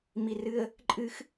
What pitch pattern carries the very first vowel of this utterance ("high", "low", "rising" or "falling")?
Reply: low